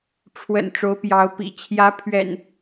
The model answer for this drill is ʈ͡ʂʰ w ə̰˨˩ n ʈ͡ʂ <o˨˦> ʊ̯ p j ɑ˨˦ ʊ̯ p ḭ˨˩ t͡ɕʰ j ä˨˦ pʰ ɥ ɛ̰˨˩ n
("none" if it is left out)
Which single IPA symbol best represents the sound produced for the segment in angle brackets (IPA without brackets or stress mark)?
o˨˦